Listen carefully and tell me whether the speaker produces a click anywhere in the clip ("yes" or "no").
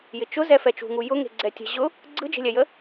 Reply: yes